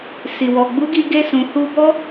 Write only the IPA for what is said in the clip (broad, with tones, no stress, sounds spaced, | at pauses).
s i˨ w ɔ˨ ɡ͡b u˨˦ ɡ i˧ ɡ e˧ s ũ˨ h u˧ b ɔ˦